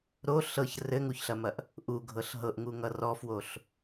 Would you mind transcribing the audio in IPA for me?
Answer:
ɾ o ɬ ɤ ç r ɘ ŋ u ç ɬ ɐ m ɐ ʔ | ʔ u ɡʱ ɤ ɬ ɦ ɤ ʔ ŋ u ŋ ʌ r ɔ f w o ɬ

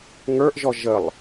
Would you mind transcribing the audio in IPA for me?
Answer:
ŋ ə˞ ʔ ʒ ɔ ʒ ə lˠ

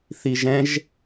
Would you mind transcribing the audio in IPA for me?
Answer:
θ i ʒ ɛ̃ ʒ

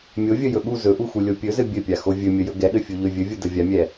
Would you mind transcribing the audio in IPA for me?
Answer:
mʲ o vʲ ə j ɵ ɠ u z ɵ ʔ u x u lʲ o pʲ ɵ z ɘ bʲ ɘ pʲ a x o vʲ ɵ mʲ ə j ɵ ɡ ɛ ɠ ɘ fʲ u ʎ ɵ vʲ ɵ vʲ u d ə vʲ a mʲ ɛ

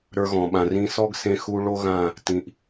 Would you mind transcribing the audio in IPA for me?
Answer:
ɾ ə˞˦ ɣ ɔ̃˨ ɓ ã˨ r ĩ˧ s ɔ˦ ɡ s ẽ˧ x u˧ ɭ o˦ ɣ ã˦˨ | t ĩ˨ ʔ

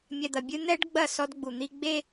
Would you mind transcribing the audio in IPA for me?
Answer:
mʲ ɛ˨ d̪ ɐ˨ bʲ ɨ˦ n̪ ɛ˦ ɖ ɡ͡b ɐ˦˨ s ɔ˦ d ɡ͡b u˨ n̪ i˦ ɡ͡b e˦

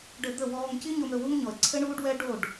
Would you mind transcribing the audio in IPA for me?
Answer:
ɖ ɘ˧ d̪ ə˦˨ w ɔː˧ ŋ c i˦ ɲ o˧ m ɾ ɵ˧ w u˦ ŋ ɲ ɔ˨ ə̯ ǀʰ ɘ˦ ɳ uː˦ ɖ w ɛ˦ ɖ o˦˨ ɖ

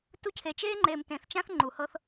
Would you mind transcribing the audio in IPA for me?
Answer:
t u˧ cʰ e˨ t͡ʃ eː˦ ŋ͡ǃ eː˨ m t ẽ˨ θ t͡ʃ ã˦ θ ŋ͡ǃ u˨ h ɤ˦ θ

